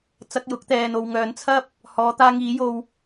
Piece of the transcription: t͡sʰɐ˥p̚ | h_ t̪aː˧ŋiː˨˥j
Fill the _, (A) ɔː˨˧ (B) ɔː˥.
A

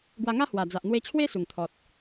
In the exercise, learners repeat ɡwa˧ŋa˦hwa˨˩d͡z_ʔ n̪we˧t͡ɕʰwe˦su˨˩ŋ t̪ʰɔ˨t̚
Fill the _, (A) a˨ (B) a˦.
A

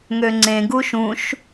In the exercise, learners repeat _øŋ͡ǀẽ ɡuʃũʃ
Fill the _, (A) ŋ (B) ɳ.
A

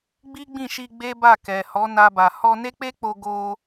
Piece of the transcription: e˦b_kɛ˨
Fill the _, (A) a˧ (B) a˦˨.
B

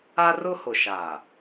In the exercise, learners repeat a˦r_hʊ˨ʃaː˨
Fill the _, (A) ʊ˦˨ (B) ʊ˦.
B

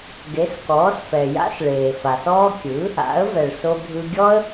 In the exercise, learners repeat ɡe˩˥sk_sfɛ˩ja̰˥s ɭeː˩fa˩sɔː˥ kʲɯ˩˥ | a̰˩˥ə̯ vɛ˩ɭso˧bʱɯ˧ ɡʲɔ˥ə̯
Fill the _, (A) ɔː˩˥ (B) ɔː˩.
A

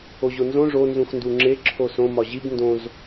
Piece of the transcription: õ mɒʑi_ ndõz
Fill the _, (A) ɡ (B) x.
A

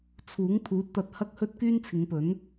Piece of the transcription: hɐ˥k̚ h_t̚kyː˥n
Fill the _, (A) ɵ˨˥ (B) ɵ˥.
B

